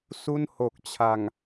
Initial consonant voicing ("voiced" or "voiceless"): voiceless